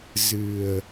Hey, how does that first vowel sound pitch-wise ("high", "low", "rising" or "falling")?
low